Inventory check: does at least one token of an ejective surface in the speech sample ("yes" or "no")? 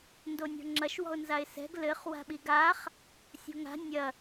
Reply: no